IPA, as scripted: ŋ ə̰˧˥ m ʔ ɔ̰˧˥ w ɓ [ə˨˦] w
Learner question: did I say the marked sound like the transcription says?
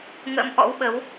yes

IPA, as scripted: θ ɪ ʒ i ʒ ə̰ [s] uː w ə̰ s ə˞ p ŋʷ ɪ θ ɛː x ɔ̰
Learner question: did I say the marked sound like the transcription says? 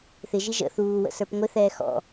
no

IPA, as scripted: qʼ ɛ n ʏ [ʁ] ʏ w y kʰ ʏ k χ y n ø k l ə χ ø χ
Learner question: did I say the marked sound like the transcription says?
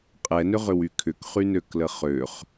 yes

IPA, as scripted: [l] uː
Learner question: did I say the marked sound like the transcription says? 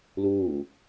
yes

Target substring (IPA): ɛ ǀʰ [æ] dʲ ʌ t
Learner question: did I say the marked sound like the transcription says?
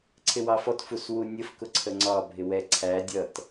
yes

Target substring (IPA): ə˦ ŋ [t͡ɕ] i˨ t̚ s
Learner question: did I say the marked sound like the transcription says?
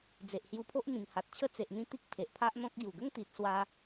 no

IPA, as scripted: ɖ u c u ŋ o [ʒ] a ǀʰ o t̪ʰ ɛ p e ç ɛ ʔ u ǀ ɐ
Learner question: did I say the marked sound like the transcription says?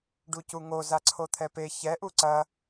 no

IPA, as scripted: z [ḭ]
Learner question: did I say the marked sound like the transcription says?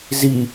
no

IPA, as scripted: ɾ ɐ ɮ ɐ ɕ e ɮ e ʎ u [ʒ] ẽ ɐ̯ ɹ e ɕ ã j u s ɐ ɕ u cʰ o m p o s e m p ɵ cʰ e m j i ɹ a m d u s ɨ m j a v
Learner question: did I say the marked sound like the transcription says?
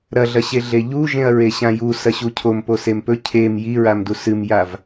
yes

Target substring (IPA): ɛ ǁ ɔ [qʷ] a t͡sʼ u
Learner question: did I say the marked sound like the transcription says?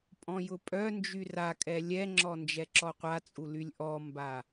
yes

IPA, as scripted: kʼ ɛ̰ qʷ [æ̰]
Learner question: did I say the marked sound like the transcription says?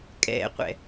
no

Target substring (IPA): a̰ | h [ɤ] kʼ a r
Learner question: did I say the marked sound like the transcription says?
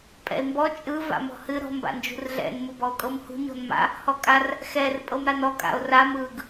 no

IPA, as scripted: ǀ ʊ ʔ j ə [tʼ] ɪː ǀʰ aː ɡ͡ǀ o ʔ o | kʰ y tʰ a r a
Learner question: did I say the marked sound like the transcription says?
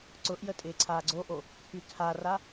yes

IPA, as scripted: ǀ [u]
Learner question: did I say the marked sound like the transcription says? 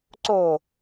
no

